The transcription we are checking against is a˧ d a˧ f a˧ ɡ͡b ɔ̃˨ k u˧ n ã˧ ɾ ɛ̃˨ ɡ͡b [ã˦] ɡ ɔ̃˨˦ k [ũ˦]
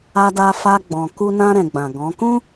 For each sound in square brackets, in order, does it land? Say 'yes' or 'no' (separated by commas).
no, yes